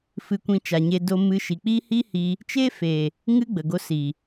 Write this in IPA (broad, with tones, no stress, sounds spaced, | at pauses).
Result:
f ɨ˧ kʷ ĩ˧ t͡ʃ a˨ ɲ e˧ d o˧ m ɨ˧ ʃ i˨ k͡p i˦ h i˦ h i˧ | t͡ʃ e˦ f e˨ | ŋ ɨ˦ ɡ͡b ə˨ ɡ o˧ s i˨